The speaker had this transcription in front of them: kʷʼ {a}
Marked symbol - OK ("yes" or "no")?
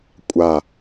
yes